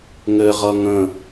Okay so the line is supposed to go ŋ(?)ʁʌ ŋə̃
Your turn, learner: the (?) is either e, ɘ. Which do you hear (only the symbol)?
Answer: ɘ